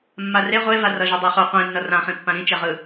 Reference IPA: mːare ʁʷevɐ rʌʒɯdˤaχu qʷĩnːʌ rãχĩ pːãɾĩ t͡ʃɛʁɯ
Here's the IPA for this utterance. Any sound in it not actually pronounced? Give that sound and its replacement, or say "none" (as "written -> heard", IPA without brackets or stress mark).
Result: ɐ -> a